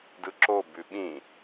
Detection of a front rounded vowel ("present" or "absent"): absent